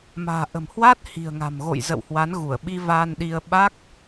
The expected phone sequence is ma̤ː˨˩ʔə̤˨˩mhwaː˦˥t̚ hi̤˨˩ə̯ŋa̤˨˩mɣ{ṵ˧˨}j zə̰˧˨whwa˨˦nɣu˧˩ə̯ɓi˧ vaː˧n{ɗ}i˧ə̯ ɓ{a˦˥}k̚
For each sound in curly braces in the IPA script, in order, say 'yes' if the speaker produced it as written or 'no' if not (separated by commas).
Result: no, yes, yes